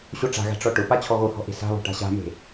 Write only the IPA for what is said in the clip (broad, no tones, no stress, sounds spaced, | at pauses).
ɕ o ʈ͡ʂ a̤ ɣ a̤ ʈ͡ʂ ɔ ʈ ʊ p a t͡ɕʰ ɔ ɣ o h ɔ̤ ʔ e̤ s a̤ β ɔ̤ ʈ a̤ ɕ a̤ m e̤